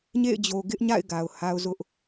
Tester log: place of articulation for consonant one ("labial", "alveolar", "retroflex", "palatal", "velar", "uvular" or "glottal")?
palatal